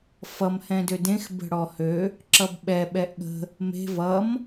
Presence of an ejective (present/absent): absent